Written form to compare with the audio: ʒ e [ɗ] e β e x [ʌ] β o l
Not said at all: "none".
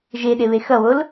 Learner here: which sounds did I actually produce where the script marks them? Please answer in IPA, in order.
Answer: ɗ, ʌ

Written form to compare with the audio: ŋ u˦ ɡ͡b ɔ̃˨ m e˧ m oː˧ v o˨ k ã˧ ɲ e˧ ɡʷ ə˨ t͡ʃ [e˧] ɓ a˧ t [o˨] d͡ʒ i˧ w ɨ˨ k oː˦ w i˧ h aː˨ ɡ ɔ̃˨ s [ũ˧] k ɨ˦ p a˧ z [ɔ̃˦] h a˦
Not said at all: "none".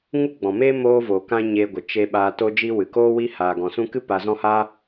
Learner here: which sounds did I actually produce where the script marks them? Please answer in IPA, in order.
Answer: e˧, o˧, ũ˧, ɔ̃˦

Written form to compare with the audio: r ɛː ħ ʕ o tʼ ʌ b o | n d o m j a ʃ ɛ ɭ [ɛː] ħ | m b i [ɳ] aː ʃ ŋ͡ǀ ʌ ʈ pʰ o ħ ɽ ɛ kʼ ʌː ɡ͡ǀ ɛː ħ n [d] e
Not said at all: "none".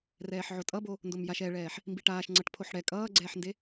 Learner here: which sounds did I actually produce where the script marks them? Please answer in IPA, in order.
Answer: ɛː, ʈ, d

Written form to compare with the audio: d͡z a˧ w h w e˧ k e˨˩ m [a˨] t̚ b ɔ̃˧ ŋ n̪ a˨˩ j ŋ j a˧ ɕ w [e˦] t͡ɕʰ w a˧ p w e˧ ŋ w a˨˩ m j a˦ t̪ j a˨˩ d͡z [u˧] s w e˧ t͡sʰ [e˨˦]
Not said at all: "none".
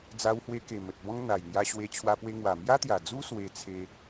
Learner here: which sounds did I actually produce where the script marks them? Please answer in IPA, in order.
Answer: ə˨, e˧, u˦, e˧

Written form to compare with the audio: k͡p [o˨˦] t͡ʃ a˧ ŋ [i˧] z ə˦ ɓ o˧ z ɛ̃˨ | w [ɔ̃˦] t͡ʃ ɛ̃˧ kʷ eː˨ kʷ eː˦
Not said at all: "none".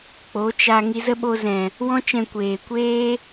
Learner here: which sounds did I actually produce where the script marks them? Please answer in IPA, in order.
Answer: o˨˦, i˧, ɔ̃˦

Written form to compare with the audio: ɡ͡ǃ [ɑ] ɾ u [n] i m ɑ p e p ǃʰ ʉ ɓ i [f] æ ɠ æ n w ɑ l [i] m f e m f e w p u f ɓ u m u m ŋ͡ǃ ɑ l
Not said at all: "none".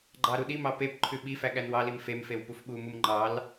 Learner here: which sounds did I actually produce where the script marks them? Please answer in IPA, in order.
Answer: ɑ, ɗ, f, i

